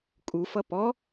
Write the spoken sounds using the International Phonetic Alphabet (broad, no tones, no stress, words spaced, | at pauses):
kʼufʌ pɔ